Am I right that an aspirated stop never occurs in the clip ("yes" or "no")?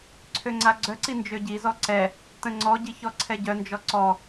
no